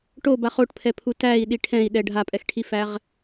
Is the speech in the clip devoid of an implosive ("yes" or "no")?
no